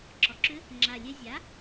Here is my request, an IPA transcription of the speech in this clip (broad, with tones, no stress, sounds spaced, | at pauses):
ǁ ɔ˨˩ ǁ ʏ˧˥ | ŋ͡ǁ a˨˩ lʲ ɛ˧ zʲ a˩˥